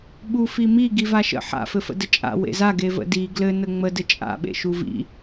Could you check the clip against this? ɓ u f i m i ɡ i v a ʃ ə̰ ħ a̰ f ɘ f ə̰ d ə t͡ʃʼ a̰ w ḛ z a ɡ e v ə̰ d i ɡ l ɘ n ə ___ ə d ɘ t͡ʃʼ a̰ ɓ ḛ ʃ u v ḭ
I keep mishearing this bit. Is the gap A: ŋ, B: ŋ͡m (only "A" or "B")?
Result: B